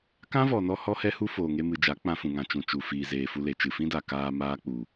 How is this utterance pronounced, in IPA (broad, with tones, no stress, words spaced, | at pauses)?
kã˦vɔ˨nɔ˧ hɔ˦hɛ˦hu˦ foː˨ŋe˧mɨ˨d͡ʒa˨˦ k͡pã˧fũ˨ŋã˨ t͡ʃũ˨t͡ʃu˨ fiː˨zeː˨fu˧le˨ t͡ʃɨ˨fĩ˦da˨ kaː˧ maː˦k͡pu˨